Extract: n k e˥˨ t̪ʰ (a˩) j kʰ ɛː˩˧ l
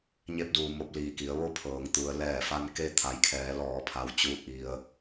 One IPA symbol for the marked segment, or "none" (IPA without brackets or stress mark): a˩˧